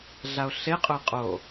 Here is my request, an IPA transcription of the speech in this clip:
ɮ a o̯ ɬ e qʼ ʊ e̯ qʼ o

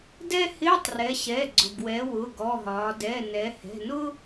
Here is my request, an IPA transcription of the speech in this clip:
d ɛ˥ h ɪː˧˥˧ tˤ r ɛ˩˧ ɕ ɛ˩˧˩ ɡ͡ǀ ʊ˩ ɡ w ɛ˩˧ w ʊ˩˧˩ ɡ ɔ˩˧˩ ɦ ɒː˩˧ d ɛ˩˧˩ n ɛ˩˧ h ɛ̤˩˧˩ n ʊ˥

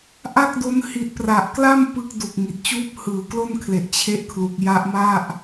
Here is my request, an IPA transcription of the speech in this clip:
ʔ a˥˩ k̚ d o˦˥ n h i˨˩ t̚ p r a˨˩ ʔ k l a˥˩ m p ɯ˦˥ k̚ d u˨˩ k̚ ŋ i˨˩ t̚ t͡ɕ uː˦˥ p̚ h ɯː˩˦ k l o˥˩ n kʰ l e˨˩ ʔ t͡ɕʰ e˦˥ ʔ kʰ l u˨˩ k̚ j a˦˥ ʔ m a˥˩ ʔ

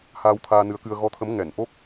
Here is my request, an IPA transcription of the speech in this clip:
h aː˧ w t̪ʰ aː˧ n ɨ˨˦ ə̯ k ɨ˧ ə̯ ɣ ɔ˨˦ t̪ʰ ə˨˦ m ŋ ɛ˧˩ n ʔ o˦˥ k̚

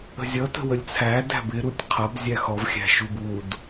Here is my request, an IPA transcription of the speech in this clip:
ə̤ zʲ ʌ t ə̤ w ə lʲ t͡sʰ æ d æ̤ b ɪ ɾ u tʲ qʰ ʌ b zʲ æ x ɔ v xʲ æ̤ ʃ u b u d

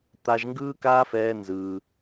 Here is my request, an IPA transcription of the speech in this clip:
t̪ a˧ ʒ ŋ ɡ ɯː˦ k aː˦ f ɛː˧ n z ɯː˧

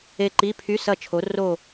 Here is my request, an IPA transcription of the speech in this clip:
e˦˨ ǃ i˧˥˧ pʰ y˧˥˧ s ɐ˦˨ t͡ʃʰ o˨˥ r o˦˨

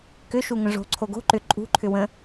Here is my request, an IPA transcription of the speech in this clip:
k ʏ ʃ u ŋ ə̃ ʐ o̤ ǀʰ o ɡ o̤ ǃ ʏ ǃʼ ṳ ǃʰ ʏ w ə̃

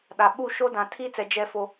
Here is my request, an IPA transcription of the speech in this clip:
ɗ a˨ ɓ u˦˨ ʃ o˦ d ã˨ tʰ iː˦ t͡s ɛ˨ d͡ʒ ɛ˦ f o˦

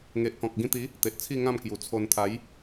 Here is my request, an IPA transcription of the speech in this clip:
ŋ e˨ ʔ k ɔ̃˨ k̚ ɡ ĩ˧ t̪ i˨˦ | t̪ e˨ ʔ t͡sʰ i˥˧ ŋ ã˥˧ m k j u˨˩ t͡sʰ o˧ n t̪ʰ a˨˦ j

